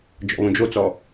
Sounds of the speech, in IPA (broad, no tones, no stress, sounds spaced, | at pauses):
d͡ʒ ɔ̰ β õ d͡ʒ o t͡s ɔ